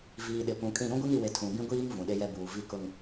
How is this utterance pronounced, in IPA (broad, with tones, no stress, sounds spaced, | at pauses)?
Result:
v iː˨ ɗ ɪ˨ p ũ˨ kʼ ĩ˦˨ ɾ ũ˦ ɡʷ e˦ ŋ i˨ w e˨ tʰ ũ˨ b ĩ˦ ɡʷ iː˦ ŋ v ũ˨ ɗ e˦ j ɛ˦ b uː˨ v i˦ k ʊ˦ ŋ